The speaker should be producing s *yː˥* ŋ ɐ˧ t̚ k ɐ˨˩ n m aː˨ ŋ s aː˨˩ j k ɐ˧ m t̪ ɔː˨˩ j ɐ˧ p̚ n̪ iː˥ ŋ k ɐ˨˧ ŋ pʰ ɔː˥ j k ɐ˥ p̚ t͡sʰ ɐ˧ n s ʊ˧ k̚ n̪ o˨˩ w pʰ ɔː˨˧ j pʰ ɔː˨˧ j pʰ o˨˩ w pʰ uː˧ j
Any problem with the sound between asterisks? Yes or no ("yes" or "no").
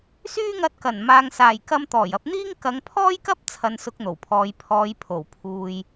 no